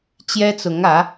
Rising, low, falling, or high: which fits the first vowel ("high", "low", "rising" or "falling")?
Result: high